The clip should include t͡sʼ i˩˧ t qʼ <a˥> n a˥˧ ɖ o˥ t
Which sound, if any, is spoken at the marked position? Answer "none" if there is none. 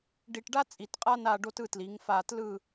a˥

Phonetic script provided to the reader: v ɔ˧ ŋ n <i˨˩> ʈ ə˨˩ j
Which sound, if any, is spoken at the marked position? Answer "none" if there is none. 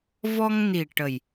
i˨˩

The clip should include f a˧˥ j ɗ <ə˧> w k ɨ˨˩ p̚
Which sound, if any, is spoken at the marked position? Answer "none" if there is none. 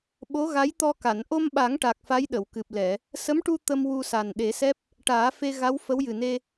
ə˨˩˨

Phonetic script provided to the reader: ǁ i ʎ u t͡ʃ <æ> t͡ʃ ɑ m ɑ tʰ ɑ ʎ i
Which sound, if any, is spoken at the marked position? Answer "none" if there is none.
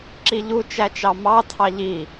æ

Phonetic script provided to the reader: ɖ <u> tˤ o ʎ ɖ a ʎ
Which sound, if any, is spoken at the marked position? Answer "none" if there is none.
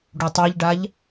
u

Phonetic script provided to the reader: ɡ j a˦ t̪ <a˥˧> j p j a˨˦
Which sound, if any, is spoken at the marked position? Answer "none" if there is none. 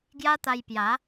a˧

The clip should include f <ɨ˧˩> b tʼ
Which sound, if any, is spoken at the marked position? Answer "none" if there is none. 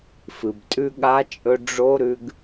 ɨ˩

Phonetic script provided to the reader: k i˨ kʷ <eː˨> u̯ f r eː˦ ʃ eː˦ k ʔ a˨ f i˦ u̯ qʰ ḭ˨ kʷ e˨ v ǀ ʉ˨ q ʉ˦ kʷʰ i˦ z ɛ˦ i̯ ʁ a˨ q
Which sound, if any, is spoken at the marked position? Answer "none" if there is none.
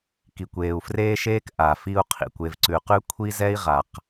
eː˨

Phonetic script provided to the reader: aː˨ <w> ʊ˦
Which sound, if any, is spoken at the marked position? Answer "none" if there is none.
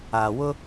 w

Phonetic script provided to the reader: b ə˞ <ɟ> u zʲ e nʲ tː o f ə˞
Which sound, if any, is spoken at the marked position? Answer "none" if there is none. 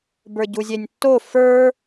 ɟ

